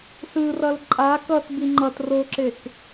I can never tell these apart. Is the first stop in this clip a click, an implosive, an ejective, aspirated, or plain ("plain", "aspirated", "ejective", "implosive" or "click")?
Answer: click